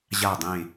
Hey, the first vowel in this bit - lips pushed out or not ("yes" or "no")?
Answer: no